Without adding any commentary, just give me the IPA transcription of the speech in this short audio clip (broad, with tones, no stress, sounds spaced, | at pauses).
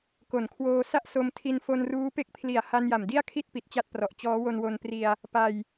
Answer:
k o˨˩ n kʰ w oː˧ s a˥˩ ʔ s o˧ m tʰ i˧ n f o˧ n r uː˦˥ p e˦˥ k̚ pʰ l i˨˩ a̯ h a˧ n j a˨˩ m d i˥˩ a̯ kʰ i˥˩ t̚ p i˨˩ t̚ t͡ɕ a˥˩ t̚ p r ɔ˨˩ ʔ t͡ɕ ɔː˦˥ w o˧ n w o˧ n p r i˧ a̯ | p a˧ j